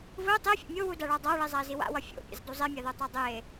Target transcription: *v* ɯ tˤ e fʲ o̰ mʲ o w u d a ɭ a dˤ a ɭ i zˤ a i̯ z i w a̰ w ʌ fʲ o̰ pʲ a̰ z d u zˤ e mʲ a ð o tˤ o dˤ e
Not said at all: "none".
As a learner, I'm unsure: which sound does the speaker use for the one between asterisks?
v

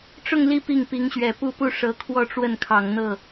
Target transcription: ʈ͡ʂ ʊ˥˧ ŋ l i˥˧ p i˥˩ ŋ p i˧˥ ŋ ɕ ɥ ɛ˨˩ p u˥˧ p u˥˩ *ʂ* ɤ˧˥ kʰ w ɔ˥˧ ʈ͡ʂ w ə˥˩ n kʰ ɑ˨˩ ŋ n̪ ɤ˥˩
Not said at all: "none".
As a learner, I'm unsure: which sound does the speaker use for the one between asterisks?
ʂ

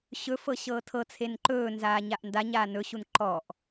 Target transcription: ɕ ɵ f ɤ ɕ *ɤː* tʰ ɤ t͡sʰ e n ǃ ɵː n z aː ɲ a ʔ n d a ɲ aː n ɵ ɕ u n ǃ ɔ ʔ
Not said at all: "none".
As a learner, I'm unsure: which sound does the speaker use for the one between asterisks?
ɤː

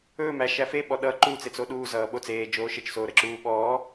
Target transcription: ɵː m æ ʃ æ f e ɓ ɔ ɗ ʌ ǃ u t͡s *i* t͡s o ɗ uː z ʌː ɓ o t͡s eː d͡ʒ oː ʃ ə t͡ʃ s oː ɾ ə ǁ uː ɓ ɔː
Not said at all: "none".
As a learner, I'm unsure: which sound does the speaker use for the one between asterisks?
e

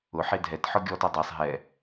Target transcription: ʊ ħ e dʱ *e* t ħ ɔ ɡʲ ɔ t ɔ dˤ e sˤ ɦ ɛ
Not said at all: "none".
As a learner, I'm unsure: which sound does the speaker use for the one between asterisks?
ɛ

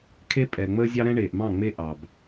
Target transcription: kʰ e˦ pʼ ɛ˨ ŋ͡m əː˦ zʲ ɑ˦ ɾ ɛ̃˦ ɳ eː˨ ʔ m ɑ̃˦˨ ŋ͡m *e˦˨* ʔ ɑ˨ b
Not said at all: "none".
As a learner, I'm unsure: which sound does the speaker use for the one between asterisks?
e˦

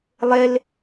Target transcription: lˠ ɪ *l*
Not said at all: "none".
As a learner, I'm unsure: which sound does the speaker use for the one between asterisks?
l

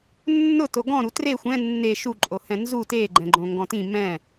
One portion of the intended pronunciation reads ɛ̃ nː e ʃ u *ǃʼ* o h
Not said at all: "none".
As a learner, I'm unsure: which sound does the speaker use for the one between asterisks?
ǃʼ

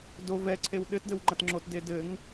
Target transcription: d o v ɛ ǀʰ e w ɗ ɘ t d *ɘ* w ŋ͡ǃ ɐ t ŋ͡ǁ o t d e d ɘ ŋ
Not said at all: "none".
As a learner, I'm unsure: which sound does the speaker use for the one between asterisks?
ɘ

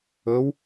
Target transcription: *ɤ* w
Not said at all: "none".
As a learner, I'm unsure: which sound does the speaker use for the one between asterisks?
ɵ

